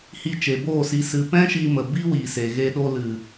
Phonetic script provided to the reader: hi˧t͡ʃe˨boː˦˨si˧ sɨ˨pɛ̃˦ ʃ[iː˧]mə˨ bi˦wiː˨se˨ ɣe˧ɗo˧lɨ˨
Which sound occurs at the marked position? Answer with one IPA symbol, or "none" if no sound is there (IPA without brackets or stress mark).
iː˧